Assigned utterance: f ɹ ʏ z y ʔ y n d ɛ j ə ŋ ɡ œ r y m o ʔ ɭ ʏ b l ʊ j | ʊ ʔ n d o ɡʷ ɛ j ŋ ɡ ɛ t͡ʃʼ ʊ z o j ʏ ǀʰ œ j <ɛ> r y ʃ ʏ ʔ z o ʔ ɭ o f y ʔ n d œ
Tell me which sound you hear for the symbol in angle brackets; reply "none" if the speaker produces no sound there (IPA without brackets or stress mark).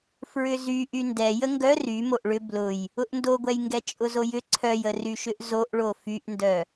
ə